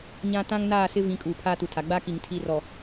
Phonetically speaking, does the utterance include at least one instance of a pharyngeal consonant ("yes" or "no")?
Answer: no